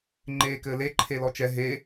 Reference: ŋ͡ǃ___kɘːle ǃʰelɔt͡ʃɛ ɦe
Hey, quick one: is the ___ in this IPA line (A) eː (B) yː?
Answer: A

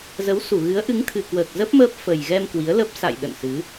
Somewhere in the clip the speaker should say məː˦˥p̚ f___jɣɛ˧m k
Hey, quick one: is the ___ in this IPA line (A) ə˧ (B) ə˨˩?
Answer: B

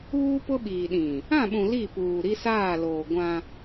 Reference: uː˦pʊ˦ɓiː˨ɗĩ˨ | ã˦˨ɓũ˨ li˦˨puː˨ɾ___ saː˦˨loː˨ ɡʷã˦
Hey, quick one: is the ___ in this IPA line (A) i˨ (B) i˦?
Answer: B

